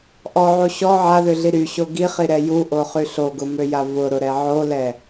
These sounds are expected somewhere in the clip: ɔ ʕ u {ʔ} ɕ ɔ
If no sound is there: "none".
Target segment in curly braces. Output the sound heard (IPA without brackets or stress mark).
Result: none